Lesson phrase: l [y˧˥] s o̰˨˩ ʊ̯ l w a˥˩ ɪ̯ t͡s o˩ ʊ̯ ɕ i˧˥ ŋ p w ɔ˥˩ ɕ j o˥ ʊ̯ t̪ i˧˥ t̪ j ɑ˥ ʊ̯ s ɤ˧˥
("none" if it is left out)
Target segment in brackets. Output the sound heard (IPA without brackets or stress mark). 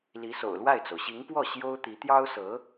i˧˥